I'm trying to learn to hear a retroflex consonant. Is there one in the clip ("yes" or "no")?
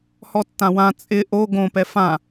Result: no